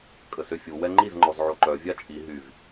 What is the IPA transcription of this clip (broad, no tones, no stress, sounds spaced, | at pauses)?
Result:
kʼ ə s ø fʲ u w ɛ ŋ͡ǃ i z ŋ͡ǃ ɔ z ʕ o ǃ œ vʲ a t͡ʃʼ i ɦ y v